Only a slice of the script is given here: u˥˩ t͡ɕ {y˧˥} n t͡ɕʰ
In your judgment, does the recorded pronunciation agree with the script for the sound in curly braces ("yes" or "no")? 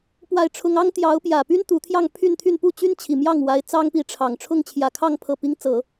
no